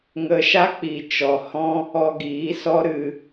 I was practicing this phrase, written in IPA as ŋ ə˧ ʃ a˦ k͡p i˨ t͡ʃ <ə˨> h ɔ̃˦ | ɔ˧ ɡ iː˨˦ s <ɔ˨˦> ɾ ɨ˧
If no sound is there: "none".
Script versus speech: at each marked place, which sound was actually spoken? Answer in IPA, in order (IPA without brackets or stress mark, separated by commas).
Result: ɔ˨, ɔ˦